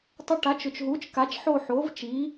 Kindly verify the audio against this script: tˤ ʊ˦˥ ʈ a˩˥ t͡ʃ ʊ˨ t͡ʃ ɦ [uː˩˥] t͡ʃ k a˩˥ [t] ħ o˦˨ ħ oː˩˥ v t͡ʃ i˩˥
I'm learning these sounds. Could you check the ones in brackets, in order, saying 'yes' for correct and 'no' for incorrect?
yes, no

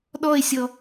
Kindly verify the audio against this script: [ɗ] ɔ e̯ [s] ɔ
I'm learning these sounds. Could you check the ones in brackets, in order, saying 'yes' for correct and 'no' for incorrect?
yes, no

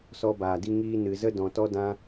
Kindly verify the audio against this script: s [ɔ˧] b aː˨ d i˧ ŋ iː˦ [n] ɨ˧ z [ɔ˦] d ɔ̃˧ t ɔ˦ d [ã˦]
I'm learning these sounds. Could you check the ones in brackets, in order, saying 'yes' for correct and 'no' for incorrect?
yes, yes, no, yes

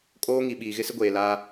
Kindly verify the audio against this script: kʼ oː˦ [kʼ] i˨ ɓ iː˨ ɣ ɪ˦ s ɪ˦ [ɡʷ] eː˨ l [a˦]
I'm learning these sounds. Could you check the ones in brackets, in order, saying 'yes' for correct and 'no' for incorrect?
no, yes, yes

